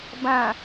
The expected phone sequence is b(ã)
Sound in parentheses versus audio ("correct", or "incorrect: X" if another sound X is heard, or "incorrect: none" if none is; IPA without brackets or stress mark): correct